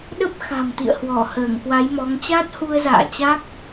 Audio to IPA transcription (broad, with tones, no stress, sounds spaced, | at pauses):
ɗ ə˦˥ p̚ x a̤˨˩ m t̪ ḭ˧˨ ə̯ h w ɔ˧˩ h əː˧˩ ŋ k w a˨˦ j m ɔ˨˦ ŋ t͡ɕ a˦˥ t̚ h u˧ ə̯ z a̰ː˧˨ t͡ɕ a˦˥ k̚